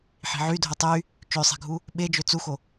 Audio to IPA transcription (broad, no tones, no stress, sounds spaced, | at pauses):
ħ i̤ ʕ y dʱ o tˤ y | t͡ʃ ø sˤ e̤ ɡʱ u | ɓ e d͡ʒ ø t͡s u x o